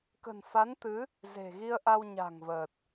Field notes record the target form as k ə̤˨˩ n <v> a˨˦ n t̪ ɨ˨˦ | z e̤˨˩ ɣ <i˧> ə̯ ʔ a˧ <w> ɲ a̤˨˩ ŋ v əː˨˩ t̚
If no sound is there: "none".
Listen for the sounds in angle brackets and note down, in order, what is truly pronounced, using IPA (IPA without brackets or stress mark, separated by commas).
f, i˧, w